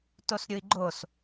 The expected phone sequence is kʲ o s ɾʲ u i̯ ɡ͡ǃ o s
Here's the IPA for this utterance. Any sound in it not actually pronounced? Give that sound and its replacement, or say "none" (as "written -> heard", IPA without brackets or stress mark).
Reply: kʲ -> t